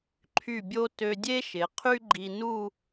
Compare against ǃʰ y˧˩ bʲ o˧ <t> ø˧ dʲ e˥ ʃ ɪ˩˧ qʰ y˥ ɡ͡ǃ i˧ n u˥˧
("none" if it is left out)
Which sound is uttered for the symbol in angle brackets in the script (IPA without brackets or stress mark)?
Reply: t